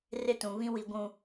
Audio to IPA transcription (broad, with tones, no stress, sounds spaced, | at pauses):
r ɪ˦ t ũ˨ β ĩ˦ w i˨ ɡʷ ũ˨